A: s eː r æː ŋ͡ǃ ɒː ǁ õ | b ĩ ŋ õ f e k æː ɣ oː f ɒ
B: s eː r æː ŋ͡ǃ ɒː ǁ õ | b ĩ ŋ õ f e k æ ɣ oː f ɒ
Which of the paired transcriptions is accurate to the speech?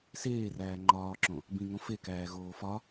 A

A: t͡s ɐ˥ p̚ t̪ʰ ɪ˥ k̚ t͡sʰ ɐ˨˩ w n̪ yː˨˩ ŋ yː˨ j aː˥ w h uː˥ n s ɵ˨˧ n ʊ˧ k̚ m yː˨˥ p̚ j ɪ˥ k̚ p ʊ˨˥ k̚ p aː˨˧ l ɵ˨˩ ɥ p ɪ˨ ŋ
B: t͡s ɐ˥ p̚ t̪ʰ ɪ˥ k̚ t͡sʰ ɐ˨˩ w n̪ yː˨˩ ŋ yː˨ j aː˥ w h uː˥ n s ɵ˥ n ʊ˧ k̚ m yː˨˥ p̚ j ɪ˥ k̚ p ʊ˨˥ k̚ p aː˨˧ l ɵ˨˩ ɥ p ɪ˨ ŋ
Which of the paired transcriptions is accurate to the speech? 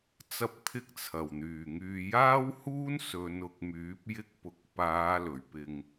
A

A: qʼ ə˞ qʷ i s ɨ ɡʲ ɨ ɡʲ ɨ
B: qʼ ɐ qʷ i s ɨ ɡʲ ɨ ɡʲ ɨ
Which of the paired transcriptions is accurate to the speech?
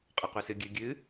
B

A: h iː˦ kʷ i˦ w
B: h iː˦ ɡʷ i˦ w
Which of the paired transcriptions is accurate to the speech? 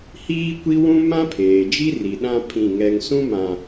A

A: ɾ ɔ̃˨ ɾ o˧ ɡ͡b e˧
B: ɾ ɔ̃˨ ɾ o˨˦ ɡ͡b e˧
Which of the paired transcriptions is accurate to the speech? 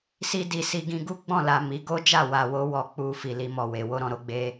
A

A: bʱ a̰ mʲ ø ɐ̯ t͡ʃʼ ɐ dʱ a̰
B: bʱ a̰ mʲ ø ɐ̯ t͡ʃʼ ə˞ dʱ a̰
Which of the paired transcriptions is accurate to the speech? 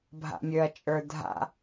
B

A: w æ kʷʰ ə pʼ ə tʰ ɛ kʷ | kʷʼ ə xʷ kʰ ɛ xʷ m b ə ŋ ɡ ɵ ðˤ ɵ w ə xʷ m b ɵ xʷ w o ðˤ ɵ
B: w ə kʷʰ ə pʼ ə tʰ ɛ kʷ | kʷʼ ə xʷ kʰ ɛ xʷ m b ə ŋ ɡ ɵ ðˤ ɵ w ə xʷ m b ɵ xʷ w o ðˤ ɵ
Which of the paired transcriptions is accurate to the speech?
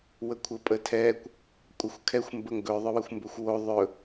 B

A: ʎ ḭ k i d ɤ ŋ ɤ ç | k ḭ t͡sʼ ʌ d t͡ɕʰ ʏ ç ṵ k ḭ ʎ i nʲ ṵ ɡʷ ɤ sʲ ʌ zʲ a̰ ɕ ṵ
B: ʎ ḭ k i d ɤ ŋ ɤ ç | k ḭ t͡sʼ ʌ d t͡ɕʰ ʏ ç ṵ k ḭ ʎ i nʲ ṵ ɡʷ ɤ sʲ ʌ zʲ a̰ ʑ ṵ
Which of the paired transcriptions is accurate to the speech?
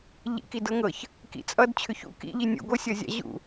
B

